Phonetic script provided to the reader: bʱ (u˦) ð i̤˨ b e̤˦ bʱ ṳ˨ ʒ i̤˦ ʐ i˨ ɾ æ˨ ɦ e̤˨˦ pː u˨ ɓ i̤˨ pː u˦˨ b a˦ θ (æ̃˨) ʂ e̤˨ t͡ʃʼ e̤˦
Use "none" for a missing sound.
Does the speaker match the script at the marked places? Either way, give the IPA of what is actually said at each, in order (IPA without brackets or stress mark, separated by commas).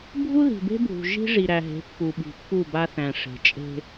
u˦, æ̃˨